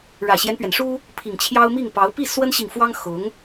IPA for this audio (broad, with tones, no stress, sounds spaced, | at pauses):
ɻ ä˨˩ ɕ j ɛ˦ n p ɥ ɛ˩ n ʂ u˥ | pʰ i˨˩ ŋ t͡ɕʰ j ɑ˥ ʊ̯ m i˥˩ ŋ p ɑ˧˥ ʊ̯ p i˥˩ s w ə˥ n ɕ i˨ ŋ f w ɑ˥ ŋ x ʊ˧˥ ŋ